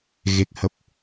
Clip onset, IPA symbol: ɣ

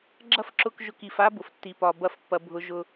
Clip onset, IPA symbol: ɡ͡ǁ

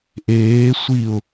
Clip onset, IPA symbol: ʔ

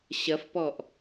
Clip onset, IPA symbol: ɕ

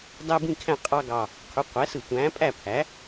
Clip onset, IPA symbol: dˤ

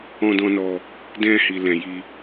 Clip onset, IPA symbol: ɔ̃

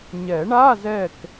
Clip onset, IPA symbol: ɲ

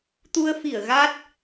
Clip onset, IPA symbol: t̪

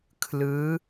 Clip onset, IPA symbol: kʰ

